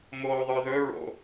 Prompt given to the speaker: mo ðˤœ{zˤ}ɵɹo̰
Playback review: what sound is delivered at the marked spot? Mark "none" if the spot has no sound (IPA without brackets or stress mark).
ð